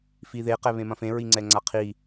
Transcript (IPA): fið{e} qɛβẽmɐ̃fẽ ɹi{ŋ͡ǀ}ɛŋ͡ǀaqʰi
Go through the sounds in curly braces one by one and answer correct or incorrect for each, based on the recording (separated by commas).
correct, correct